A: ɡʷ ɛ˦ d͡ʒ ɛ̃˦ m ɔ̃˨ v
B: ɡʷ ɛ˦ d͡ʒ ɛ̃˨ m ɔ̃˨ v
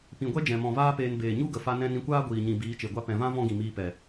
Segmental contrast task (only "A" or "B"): B